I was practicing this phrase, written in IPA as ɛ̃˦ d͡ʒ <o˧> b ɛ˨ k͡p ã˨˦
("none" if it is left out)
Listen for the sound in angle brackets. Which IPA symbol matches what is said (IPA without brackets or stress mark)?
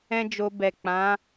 o˧